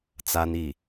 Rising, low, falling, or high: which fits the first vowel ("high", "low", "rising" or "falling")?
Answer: high